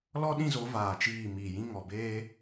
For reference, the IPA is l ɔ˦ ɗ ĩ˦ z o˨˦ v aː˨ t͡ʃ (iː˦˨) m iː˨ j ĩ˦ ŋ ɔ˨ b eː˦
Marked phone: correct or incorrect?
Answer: correct